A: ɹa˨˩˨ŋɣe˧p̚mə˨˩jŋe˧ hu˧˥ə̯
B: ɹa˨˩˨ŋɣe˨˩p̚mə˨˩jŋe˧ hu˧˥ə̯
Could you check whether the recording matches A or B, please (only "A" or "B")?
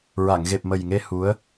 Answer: B